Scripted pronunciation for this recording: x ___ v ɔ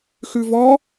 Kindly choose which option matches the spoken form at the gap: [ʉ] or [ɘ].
ʉ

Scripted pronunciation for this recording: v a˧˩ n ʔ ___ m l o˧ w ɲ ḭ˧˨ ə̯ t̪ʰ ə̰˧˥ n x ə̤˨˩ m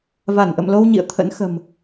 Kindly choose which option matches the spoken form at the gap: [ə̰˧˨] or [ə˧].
ə̰˧˨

